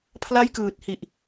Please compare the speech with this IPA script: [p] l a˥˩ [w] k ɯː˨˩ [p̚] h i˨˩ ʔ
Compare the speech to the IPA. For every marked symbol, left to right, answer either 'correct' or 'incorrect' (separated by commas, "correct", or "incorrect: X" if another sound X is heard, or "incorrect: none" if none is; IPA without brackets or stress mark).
incorrect: pʰ, incorrect: j, incorrect: t̚